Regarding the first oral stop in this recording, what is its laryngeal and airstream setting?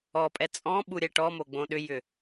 ejective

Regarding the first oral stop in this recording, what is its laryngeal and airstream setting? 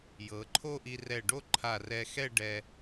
click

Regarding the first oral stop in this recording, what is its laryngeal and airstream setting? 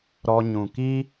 plain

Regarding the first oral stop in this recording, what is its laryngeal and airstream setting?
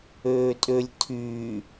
ejective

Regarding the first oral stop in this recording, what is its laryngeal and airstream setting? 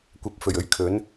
plain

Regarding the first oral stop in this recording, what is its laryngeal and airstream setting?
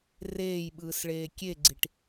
implosive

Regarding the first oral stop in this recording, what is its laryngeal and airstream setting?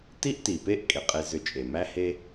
plain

